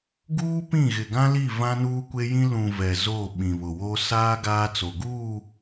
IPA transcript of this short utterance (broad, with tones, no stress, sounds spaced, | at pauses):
ɡ uː˦ p ĩ˦˨ ɣ ɪ˨ ɡ ã˦ l i˦˨ v ã˦ n uː˦ kʷ e˦ j ĩ˦ l ũ˨ v ɛ˨ z o˦˨ ɓ ĩ˨ β ʊ˨ w o˦ s aː˦ ɡ aː˦ t͡s o˨ ɡ uː˦˨